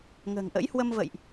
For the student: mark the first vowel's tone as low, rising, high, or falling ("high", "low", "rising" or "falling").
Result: low